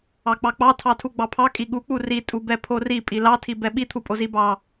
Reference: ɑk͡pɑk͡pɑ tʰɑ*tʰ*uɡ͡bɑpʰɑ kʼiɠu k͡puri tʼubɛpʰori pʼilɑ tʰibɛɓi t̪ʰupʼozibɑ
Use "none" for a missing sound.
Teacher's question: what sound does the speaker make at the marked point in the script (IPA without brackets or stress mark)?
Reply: tʰ